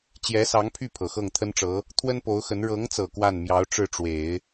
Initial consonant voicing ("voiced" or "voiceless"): voiceless